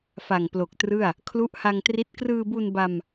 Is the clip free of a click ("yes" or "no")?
yes